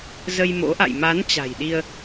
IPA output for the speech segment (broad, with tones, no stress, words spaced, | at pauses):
zə˧jmo̰˧˥ʔa̰˧˨j ma˨˦n t͡ɕa̤˨˩jɗi˧ə̯